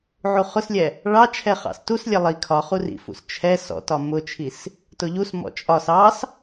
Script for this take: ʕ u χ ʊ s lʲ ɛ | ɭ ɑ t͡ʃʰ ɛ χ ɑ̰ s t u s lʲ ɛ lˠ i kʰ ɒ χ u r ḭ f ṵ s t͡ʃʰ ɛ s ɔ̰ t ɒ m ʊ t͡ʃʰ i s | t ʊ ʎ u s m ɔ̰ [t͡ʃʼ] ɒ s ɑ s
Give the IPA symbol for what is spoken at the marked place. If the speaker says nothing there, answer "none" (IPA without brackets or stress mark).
t͡ʃʼ